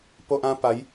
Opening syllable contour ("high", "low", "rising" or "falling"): high